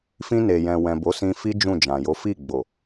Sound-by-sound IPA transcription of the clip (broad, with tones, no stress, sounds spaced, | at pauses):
f ĩ˧ n e˨ j ɛ̃˨ w ɛ̃˨ b o˨˦ s ĩ˧ f i˦ d͡ʒ ũ˦˨ d͡ʒ ã˨ j o˨˦ f i˦˨ ɡ͡b o˨